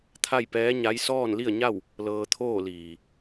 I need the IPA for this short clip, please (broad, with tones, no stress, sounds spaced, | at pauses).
t̪ʰ a˥˨ j p ɛː˧˥ ɲ a˧˥ j s ɔː˥˨ n l i˥˨ ə̯ ɲ a˥˨ w | l ɤː˧ t̪ʰ oː˥˨ l iː˩